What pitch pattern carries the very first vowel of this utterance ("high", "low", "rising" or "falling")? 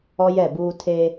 high